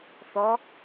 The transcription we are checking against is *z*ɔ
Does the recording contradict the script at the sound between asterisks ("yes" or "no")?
yes